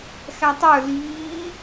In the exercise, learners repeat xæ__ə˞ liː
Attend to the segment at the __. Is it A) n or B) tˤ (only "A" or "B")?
B